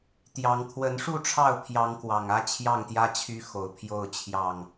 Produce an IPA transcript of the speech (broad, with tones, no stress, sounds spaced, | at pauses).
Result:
t̪ j ɑ˨˦ ŋ kʰ w ə˨˦ n ʂ u˥˨ ʈ͡ʂʰ ɑ˥˨ ʊ̯ pʰ j ɑ˨˦ ŋ k w ɑ˨˩ ŋ ä˥˨ t͡ɕʰ j ɑ˥˨ ŋ t̪ j ä˦ t͡ɕʰ y˦ x o˨˩ ʊ̯ pʰ j o˥˨ ʊ̯ t͡ɕʰ j ɑ˥˨ ŋ